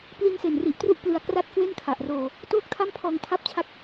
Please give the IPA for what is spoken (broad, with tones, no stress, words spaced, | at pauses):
pli˧nse˨˩nri˨˩ʔtru˦˥ʔ plɯ˧a̯kra˥˩t̚ kwe˥˩nkʰa˨˩ʔroː˧ | toː˥˩k̚tʰa˥˩m pʰɔː˧ŋtʰa˥˩p̚t͡ɕʰa˥˩k̚